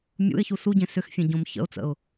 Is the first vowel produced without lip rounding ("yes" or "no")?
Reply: no